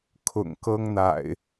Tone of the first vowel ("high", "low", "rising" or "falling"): low